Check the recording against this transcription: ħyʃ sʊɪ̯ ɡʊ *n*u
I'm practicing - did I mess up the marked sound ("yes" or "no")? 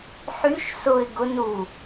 no